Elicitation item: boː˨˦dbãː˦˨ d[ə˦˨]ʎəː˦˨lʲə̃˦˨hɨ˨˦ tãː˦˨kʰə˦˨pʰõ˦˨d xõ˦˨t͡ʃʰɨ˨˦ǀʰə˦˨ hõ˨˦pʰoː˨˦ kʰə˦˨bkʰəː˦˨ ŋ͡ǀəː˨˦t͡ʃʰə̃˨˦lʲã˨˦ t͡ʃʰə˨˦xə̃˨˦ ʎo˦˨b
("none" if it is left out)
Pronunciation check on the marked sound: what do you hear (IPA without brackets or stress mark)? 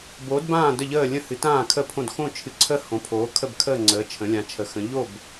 ə˦˨